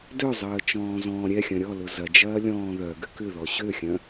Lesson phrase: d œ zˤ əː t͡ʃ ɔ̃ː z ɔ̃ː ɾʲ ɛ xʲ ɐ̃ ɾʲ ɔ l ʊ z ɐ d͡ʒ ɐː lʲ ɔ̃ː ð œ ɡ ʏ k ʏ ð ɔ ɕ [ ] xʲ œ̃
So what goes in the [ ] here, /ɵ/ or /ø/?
ø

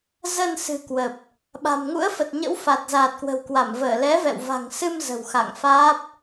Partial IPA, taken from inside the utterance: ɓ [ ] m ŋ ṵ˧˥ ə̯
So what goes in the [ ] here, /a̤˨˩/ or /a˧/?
a̤˨˩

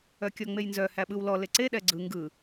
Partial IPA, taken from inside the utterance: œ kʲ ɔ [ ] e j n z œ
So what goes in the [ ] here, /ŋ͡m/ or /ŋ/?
ŋ͡m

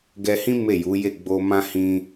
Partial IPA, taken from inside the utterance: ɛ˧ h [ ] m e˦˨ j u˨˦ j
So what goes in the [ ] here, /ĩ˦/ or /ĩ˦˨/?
ĩ˦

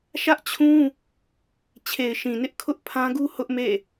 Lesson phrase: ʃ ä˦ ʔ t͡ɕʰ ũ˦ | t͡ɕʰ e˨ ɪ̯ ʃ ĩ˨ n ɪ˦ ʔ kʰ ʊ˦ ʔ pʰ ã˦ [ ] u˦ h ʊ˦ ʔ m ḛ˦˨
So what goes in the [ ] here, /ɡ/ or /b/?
ɡ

